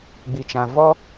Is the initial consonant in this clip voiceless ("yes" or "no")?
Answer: no